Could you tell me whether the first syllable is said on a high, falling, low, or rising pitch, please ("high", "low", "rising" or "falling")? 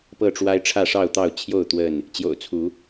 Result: falling